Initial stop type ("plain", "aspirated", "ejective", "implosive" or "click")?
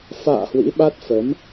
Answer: implosive